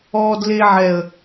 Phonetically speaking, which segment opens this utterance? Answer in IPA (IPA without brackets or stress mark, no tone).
ɔː